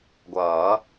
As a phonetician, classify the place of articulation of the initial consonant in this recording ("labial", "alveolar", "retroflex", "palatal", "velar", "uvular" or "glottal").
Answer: velar